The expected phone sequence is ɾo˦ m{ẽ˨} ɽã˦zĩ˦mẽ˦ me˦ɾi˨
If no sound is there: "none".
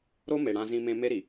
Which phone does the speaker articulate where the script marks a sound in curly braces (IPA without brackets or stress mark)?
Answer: e˨